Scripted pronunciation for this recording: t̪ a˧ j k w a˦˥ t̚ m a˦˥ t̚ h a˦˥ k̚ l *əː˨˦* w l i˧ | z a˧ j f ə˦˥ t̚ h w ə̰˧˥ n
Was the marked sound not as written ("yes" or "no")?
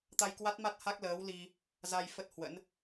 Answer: no